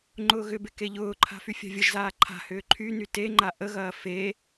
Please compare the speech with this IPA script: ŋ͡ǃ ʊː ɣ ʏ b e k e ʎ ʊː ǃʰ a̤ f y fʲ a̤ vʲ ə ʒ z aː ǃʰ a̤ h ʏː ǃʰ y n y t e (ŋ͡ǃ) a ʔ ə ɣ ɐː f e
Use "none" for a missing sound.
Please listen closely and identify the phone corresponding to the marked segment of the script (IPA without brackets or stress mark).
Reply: ŋ͡ǃ